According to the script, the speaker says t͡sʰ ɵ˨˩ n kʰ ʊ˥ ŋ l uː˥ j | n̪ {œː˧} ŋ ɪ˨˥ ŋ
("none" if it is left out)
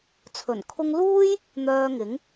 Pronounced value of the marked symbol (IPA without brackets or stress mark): œː˧